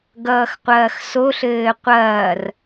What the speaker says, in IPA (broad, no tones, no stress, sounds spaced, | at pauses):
ɡ ʌː x qʷ ɐː x s o ɬ ɘː qʷ ɐː r